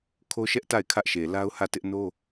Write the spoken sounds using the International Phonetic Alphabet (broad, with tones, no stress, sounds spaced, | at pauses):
kʰ o˦ ʃ ɛ˦ ʔ t a˦˨ ɪ̯ kʰ ä˦ ʔ ʃ e˨ l a˦ ʊ̯ h ä˦˨ t ɪ˦ ʔ n o˦